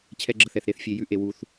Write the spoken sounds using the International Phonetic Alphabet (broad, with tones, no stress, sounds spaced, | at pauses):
t͡ɕʰ ɛ˦ ɡ͡ǁ ə˧ θ ɛ˧ θ ɾ e˦ θ fʲ e˧ j ʉ˦ ʔ e˧ w u˦ θ